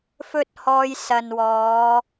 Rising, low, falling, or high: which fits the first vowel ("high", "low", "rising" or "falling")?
high